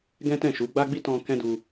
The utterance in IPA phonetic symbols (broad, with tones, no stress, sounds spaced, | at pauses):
ɡ ɛ̃˦ t ɛ̃˦˨ ʃ u˨˦ ɡ͡b a˦ ɡ͡b i˦ t ɔ̃˧ k ɛ̃˦ d u˧